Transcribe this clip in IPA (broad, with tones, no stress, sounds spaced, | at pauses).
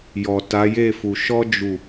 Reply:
j ɔ˨ t a˨˦ j e˦˨ f u˨ ʃ ɔ˧ d͡ʒ u˨